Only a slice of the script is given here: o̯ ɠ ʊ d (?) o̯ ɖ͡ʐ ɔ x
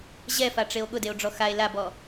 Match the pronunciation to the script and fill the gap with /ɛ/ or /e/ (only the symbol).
e